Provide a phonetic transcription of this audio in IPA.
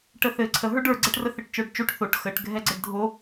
ʈ ə θ ɘ ǀʰ ə ɦ ə˞ ɖ ə˞ ɡ͡ǀ ɛ ʈ r ə θ ɘ ʈ t͡ʃ ə˞ ɖ t͡ʃ o ʈ θ o ʈ x ə ʈ ɡʱ ɛ ɡ͡ǀ ɘ ɖ dʱ o

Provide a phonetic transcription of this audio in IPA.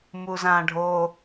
m u z ã ɖʱ o

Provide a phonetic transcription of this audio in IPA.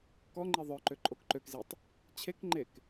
k ɔ ŋ͡ǃ i ðˤ œ ǃ ø ǃʼ o k ǃ ø k z i tˤ | t͡ɕʰ e k ŋ͡ǃ e k

